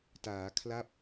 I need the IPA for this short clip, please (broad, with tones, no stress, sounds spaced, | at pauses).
t aː˩˦ kʰ l a˥˩ p̚